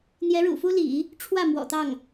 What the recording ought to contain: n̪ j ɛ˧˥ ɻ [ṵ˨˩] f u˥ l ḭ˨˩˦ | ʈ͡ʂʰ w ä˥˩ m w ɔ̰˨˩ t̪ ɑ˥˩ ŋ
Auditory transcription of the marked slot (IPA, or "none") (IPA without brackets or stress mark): ṵ˨˩